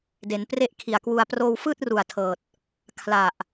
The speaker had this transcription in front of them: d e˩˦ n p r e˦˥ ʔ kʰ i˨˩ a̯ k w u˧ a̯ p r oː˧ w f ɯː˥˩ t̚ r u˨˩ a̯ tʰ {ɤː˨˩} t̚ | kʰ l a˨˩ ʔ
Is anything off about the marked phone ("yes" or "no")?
no